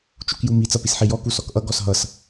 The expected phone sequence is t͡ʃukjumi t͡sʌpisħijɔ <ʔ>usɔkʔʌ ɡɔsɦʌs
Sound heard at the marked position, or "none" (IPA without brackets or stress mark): k